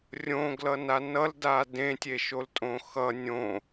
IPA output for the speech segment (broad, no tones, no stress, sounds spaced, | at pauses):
rʲ õ ɡ l ʌ n a n ʌ l d a d ẽ tʲ e ʃ o l tʼ õ x ʌ nʲ õ